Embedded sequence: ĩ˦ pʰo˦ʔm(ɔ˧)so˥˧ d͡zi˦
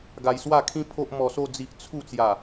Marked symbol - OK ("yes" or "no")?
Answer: yes